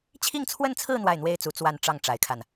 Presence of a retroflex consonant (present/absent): present